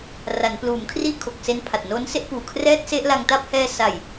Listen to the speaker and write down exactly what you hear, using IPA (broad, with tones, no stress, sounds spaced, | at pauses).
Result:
r a˩˦ n p l uː˩˦ m kʰ r iː˥˩ kʰ o˨˩ k̚ s e˦˥ n pʰ a˨˩ t̚ n oː˦˥ n s e˥˩ ʔ p uː˨˩ kʰ r ɛː˥˩ t̚ s e˥˩ ʔ l a˧ ŋ t a˥˩ p̚ h ɛː˧ s a˨˩ j